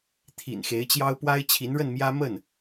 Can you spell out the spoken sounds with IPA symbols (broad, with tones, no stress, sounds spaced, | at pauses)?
t̪ʰ ḭ˨˩ n x e˧˥ ɪ̯ t͡ɕ j ɑ˥ ʊ̯ p w a˥ ɪ̯ t͡ɕʰ i˧˥ n ɻ ə˥˩ n m j ä˥ m ə˥˩ n